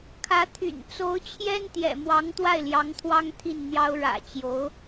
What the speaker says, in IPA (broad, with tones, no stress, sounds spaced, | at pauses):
kʰ ä˧˥ t̪ʰ y̰˨˩ n t͡s o˧˥ ʊ̯ t͡ɕʰ j ɛ˥ n t̪ j ɛ̰˨˩ m w ɑ˧˥ ŋ t̪ w a˥˩ ɪ̯ l j ɑ˧˥ ŋ t̪ʰ w ɑ˥ ŋ t̪ʰ i˥˩ n n̪ j ɑ˥ ʊ̯ ɻ ä̰˨˩ t͡ɕ j o˧˥ ʊ̯